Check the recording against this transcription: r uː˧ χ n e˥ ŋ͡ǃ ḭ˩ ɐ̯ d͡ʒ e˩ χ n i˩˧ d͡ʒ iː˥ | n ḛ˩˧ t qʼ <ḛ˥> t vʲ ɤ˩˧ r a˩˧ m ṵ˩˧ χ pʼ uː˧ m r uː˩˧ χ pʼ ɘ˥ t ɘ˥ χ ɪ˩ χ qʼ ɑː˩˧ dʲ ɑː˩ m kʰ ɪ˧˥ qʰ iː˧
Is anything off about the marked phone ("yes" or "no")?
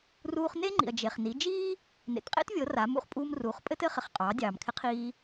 no